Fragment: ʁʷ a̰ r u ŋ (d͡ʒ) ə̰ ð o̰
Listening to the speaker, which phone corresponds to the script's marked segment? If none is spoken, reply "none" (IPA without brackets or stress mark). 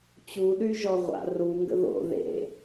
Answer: ɡ